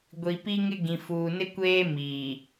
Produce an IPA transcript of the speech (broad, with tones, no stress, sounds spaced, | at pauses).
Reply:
ɡʷ i˨ p i˦ ŋ ɪ˦ ɡ ĩ˨ f uː˨ n ɪ˦ kʷ eː˦ m iː˨